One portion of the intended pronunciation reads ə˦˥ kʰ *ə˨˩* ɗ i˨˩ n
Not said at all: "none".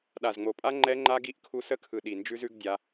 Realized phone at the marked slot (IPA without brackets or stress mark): ɯ˨˩